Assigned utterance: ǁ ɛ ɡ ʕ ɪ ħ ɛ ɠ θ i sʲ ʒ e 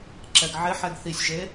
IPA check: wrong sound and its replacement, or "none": ɠ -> ɡ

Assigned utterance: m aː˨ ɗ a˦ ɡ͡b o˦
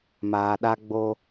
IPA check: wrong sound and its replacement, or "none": none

